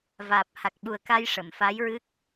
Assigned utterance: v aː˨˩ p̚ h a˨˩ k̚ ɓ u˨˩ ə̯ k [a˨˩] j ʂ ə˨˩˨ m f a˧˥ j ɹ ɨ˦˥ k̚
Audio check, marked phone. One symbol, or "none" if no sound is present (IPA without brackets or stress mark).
a˧